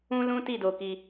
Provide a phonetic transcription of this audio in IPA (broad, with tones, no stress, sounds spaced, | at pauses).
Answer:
ũ˦ l ũ˦ t i˦˨ d o˧ k i˧